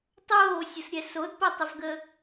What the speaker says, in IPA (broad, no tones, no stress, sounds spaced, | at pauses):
tˤ oː sʲ ə s ɾʲ ɛ s o d p ɐ tˤ ə v ɡ ə